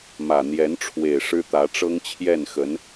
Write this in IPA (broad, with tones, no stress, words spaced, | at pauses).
mä˨˩n̪jɛ˧˥n ʈ͡ʂʰwe˨˩ɪ̯ ʂɻ̩˥t̪ä˧˥ ʈ͡ʂɤ˥ŋt͡ɕʰjɛ˥˩nxə˧˥n